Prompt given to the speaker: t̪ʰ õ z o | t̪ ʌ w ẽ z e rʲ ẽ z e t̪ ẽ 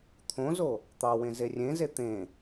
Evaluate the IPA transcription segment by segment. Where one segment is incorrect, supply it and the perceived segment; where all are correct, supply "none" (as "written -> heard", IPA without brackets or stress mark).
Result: ʌ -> ɑ